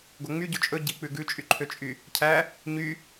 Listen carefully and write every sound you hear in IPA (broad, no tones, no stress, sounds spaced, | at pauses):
ɡ o ŋ͡m y ɟ o t͡ʃʼ ɵ ɟ i k͡p ʉ ɡ ʉ t͡ʃʼ y ǃʰ ø t͡ʃʼ y | cʰ æ | ɲ y